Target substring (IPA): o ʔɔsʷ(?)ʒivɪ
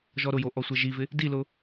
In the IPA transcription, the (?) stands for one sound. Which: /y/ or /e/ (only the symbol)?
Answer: e